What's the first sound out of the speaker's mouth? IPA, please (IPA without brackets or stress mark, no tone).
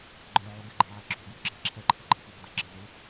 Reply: ɡ͡ǃ